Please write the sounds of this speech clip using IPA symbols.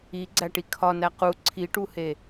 iɡ͡ǀæʈi kʰɒnæ qu ǀʰiʈuhe

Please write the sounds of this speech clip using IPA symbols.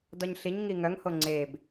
dɔɲɬiɲŋi ŋœŋho ŋ͡ǀeb

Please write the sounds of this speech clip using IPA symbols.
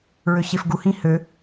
ɹøɕefɡuhĩ hø

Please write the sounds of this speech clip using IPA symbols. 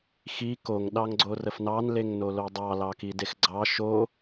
xi koŋ ɗɑŋɡ͡ǀorəfnɑn leŋnolodˤɑ lɑkidexɡ͡ǀɑ ʃo

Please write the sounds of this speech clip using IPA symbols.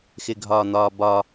xɪɡʱɒːn̪ɒːbɒː

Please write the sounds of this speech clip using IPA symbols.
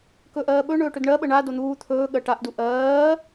kɵʔɜːɓɵ ɳɵːʈɵdɳɜɓə ɳa don̪uː t̪ʰɵː ɠɜʈaʔdu ʔɜː

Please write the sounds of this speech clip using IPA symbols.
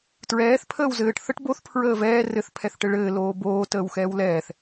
tɹɛːθ pʰəːwzɘːʈ θəʈ boθ pʰɹəːvɛː rɘθ pʰɛθʈɘɭɘː loːboː təːwxɛːwlɛːθ

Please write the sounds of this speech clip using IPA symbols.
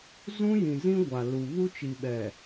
zũ˦jĩ˨zĩ˦ ɡʷa˨lu˨ βu˦t͡ʃi˨ɓɛ˨

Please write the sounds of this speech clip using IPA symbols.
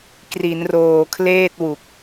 kri˩˦nroː˨˩kʰleː˥˩t̚wu˨˩k̚

